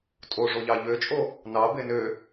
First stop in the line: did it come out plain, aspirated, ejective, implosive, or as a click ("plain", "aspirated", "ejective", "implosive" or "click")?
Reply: ejective